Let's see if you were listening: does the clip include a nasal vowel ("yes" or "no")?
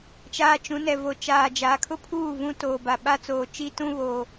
yes